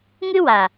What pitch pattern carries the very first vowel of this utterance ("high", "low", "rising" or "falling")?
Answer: high